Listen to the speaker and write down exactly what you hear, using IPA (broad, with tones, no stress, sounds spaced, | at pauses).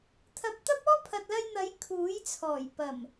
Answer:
t̪ʰ ɐ˧ p̚ t̪ ɐ˥ p̚ ɔː˥ pʰ ɐ˨ t̚ l ɐ˧ j n̪ ɐ˨˥ j kʰ uː˨˥ j t͡sʰ ɔː˨˩ j p ɐ˨˩ m